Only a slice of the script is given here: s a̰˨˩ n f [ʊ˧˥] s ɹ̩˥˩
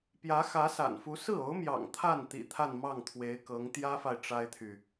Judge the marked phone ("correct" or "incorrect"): incorrect